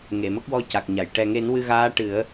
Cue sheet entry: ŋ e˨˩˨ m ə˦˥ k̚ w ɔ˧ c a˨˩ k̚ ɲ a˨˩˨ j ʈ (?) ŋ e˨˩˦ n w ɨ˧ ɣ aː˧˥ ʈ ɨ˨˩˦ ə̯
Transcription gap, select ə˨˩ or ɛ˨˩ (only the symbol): ɛ˨˩